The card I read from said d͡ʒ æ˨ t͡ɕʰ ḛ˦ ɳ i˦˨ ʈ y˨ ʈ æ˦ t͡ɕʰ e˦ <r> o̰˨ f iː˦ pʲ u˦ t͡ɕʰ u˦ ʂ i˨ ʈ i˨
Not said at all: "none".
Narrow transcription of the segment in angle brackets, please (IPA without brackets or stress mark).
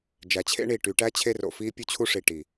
r